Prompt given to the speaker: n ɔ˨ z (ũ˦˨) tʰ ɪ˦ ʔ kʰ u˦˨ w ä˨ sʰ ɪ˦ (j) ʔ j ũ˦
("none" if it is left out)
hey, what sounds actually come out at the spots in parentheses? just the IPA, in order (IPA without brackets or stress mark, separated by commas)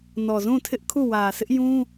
ũ˦˨, none